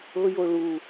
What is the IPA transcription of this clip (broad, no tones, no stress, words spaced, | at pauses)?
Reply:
ɤjo ɭu